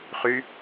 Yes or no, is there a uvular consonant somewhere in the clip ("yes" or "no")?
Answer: yes